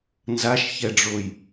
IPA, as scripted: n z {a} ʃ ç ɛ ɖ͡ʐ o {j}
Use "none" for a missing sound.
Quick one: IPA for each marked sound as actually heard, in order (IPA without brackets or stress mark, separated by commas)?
a, j